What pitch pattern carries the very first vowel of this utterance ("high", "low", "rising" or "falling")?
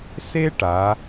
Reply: high